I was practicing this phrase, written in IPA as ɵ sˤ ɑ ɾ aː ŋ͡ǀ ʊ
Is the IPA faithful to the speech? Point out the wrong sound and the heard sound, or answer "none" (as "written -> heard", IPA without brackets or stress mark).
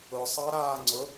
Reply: ɵ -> ʊ